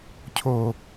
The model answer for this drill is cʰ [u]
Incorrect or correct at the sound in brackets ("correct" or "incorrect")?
incorrect